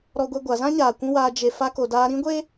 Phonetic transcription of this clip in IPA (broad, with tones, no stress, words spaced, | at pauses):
ɾɔ˦ɡʷɛ˦ɡʷa˨˦ zã˦ɲaː˨ kʷũ˦waː˧ d͡ʒe˧ fa˧ko˨daː˧ ɾĩ˦ɡʷe˦